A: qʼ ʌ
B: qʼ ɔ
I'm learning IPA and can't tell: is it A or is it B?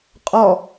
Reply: B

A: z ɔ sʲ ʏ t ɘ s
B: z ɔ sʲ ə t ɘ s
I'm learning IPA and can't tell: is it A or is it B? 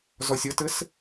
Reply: B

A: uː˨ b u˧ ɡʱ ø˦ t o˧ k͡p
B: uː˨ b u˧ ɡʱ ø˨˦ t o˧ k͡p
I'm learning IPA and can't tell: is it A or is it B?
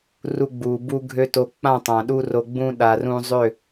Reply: A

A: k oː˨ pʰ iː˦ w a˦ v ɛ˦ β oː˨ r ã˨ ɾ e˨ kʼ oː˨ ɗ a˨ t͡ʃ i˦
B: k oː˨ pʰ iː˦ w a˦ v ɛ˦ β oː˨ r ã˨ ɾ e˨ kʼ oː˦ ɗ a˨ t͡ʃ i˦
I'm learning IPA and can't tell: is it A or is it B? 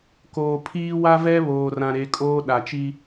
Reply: B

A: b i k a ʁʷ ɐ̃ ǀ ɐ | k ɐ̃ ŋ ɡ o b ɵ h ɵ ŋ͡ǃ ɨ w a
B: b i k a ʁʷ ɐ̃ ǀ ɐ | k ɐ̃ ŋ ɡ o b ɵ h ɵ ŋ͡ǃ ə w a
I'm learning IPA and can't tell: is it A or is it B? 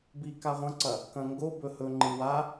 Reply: A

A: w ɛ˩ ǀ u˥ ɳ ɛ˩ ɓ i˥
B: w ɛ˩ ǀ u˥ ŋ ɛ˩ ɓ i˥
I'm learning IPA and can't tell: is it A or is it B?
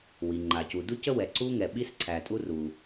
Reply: B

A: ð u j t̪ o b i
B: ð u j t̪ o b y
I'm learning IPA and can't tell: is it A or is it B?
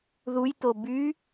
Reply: B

